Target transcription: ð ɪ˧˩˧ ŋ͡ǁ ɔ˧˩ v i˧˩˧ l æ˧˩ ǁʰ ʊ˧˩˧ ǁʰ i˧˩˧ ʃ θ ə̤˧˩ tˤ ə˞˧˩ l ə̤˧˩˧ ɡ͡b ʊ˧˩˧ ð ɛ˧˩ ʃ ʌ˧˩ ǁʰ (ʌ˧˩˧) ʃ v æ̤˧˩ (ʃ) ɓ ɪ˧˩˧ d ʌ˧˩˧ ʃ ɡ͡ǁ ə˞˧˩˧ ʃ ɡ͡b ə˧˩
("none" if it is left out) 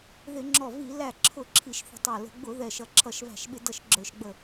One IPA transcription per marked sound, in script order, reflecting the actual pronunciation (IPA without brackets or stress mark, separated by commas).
ʌ˧˩˧, ʃ